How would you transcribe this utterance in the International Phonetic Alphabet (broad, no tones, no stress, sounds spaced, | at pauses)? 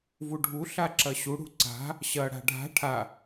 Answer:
v u ɖʱ u ɬ a ǁ ɐ ɕ u ɽ ṳ ǀ a̤ | ɕ ɐ ɽ a̤ ɖʱ a̤ ʈʰ a